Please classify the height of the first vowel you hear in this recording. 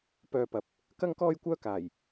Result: mid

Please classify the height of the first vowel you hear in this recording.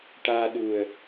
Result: low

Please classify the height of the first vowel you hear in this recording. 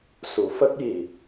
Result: high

